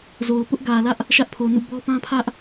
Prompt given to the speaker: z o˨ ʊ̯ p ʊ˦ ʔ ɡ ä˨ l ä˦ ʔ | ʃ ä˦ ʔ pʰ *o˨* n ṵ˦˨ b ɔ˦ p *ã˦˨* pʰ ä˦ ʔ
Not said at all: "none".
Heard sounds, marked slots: o˨, ã˦

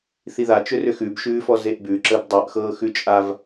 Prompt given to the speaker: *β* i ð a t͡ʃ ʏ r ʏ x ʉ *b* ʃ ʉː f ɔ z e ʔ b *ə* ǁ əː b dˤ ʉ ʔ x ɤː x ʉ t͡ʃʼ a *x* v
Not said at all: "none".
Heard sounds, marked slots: θ, b, ʉ, none

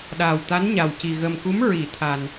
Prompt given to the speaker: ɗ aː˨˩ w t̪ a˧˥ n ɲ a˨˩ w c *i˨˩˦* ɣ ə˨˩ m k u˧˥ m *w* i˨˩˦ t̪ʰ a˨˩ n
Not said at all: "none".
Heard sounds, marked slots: i˨˩, ɹ

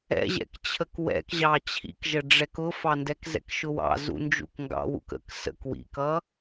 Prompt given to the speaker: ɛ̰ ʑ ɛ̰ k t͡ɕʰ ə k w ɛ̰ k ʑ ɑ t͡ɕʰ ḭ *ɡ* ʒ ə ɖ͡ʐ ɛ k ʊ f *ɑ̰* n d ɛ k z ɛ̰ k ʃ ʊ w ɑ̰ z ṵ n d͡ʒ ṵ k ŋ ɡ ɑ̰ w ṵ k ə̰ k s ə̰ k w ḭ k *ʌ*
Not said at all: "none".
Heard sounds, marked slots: k, ɑ, ʌ

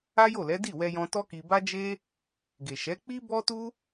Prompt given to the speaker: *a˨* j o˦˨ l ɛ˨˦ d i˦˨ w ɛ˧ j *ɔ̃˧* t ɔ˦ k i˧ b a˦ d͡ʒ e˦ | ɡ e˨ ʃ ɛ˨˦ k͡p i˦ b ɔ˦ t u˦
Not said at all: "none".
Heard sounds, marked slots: a˦, ɔ̃˧

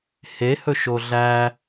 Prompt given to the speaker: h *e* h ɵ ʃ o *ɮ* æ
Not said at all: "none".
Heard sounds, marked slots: e, ɮ

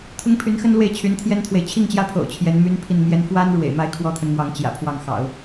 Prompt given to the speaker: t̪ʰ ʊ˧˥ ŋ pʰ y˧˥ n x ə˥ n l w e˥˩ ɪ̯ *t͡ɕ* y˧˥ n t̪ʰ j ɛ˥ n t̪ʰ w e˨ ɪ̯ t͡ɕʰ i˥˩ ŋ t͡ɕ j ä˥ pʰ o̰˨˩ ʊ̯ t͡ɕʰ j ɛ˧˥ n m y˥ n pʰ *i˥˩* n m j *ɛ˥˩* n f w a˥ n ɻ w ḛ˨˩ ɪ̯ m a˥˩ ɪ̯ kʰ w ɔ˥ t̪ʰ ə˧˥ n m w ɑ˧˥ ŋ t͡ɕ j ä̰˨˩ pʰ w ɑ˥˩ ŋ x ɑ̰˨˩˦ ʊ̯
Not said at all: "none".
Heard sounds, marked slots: t͡ɕʰ, i˥˩, ɛ˧˥

